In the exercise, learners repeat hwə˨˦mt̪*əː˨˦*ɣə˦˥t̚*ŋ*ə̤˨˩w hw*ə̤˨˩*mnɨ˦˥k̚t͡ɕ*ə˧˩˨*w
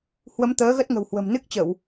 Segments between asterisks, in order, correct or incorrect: correct, correct, correct, correct

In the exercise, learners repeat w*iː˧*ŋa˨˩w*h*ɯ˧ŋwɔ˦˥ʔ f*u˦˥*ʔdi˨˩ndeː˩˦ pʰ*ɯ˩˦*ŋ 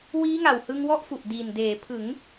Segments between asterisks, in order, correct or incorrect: incorrect, correct, incorrect, correct

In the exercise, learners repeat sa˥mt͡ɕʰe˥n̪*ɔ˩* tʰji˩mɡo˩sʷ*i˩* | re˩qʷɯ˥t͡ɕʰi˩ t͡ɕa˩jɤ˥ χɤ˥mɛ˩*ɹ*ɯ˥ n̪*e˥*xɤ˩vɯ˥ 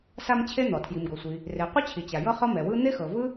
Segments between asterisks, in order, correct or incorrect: correct, correct, incorrect, correct

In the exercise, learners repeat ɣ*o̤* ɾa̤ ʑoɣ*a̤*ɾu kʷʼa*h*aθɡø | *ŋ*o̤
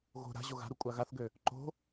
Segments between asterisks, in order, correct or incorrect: correct, correct, incorrect, incorrect

